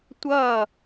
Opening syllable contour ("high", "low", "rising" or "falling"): falling